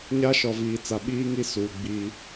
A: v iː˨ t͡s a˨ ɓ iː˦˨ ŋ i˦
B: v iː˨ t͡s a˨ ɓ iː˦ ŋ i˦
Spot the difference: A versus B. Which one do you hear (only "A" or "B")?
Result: B